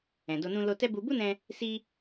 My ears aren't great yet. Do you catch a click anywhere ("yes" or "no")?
no